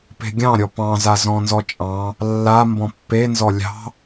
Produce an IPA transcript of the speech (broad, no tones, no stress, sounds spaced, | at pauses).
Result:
p e̤ ɡʲ ɑ̃ ɾʲ ɔ p ɑ̃ z a z ɔ̃ n z ɔ t͡ʃʼ ɑ̃ | lː a m b ɔ̃ pː e n z ɔ lʲ ɑ̤